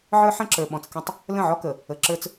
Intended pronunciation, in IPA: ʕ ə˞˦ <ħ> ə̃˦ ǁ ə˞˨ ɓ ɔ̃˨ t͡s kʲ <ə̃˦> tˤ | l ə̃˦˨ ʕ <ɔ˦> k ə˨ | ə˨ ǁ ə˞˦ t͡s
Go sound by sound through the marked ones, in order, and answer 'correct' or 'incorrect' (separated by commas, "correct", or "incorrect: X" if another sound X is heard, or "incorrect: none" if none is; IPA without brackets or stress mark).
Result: correct, correct, correct